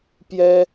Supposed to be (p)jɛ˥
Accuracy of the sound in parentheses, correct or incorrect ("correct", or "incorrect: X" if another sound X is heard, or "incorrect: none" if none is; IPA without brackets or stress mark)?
correct